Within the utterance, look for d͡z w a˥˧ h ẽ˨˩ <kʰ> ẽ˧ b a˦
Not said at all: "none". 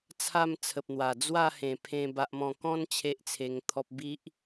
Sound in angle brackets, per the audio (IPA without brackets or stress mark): pʰ